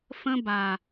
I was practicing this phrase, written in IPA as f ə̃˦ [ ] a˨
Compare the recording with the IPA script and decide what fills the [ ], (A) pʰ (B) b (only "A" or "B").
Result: B